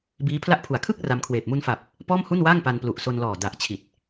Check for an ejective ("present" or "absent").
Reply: absent